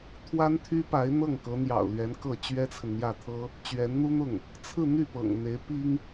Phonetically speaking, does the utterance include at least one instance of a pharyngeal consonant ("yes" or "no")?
no